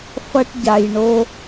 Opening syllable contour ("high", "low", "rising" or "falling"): high